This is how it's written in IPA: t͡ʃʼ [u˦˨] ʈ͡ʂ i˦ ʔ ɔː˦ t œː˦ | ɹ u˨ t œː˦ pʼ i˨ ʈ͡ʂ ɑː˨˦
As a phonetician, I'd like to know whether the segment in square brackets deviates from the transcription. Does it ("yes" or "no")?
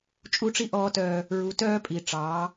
no